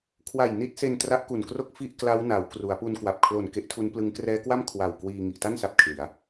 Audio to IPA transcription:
kʰ w a˨˩ j n i˦˥ t̚ s e˧ n t r a˦˥ ʔ k u˨˩ n k r o˥˩ k̚ f i˥˩ ʔ k l a˦˥ w n a˩˦ w k r u˩˦ a̯ p u˧ n k w a˨˩ p̚ kʰ l o˨˩ n k e˦˥ ʔ tʰ u˦˥ n p l ɯ˦˥ ŋ k r ɛː˦˥ k w a˥˩ m kʰ w a˨˩ w k w iː˧ ŋ i˨˩ ʔ t a˥˩ n s a˨˩ p̚ kʰ l i˩˦ a̯

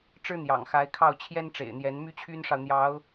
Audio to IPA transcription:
ʈ͡ʂ ɻ̩˥ n̪ j ɑ̰˨˩ ŋ x a˧˥ ɪ̯ kʰ ɑ˥˩ ʊ̯ t͡ɕʰ j ɛ˥ n ʈ͡ʂ ḛ˨˩ ɪ̯ n̪ j ɛ˧˥ n m y˥ t͡ɕʰ y˥ n ʂ ɑ˨ ʊ̯ n̪ j ɑ˧˥ ʊ̯

